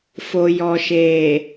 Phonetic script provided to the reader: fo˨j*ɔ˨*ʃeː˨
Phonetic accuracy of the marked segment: correct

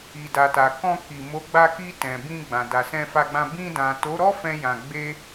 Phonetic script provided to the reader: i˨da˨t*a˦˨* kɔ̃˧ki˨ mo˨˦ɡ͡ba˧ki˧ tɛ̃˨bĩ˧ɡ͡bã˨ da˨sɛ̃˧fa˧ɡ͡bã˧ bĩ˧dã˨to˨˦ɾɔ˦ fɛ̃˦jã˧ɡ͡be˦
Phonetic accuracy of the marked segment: incorrect: a˨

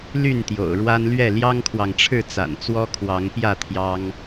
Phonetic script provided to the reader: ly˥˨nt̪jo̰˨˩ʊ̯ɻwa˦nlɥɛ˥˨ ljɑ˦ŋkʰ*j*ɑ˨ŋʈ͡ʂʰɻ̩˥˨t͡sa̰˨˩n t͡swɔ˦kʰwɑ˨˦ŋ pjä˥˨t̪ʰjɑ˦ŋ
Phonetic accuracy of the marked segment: incorrect: w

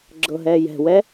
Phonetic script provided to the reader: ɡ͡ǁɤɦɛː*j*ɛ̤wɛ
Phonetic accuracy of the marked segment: correct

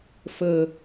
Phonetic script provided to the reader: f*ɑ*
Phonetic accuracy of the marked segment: incorrect: ə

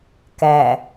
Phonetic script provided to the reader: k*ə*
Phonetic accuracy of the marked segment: incorrect: æ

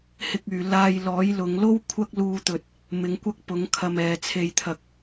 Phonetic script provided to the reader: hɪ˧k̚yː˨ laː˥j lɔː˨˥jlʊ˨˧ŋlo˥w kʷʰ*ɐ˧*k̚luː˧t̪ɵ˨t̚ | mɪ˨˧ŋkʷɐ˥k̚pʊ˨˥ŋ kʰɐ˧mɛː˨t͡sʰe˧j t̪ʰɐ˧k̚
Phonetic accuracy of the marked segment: incorrect: ɐ˥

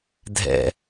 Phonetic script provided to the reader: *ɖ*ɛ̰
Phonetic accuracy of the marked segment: incorrect: dʱ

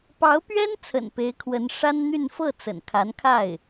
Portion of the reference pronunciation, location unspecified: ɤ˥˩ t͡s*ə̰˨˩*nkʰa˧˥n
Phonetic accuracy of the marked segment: correct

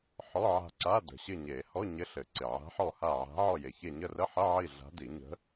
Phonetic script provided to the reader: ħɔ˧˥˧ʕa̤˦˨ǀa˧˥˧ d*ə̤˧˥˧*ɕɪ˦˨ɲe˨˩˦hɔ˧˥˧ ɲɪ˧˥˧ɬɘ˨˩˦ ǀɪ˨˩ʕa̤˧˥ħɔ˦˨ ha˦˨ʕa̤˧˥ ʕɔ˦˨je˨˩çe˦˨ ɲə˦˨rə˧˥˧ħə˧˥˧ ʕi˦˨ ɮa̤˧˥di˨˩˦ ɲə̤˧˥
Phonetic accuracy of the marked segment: incorrect: ə̤˨˩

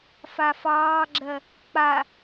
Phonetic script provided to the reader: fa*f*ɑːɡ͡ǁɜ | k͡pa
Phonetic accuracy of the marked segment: correct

